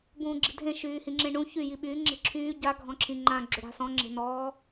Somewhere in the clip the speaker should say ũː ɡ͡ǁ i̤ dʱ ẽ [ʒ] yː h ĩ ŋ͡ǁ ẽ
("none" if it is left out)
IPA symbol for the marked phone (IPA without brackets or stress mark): ʃ